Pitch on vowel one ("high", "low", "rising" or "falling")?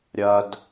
high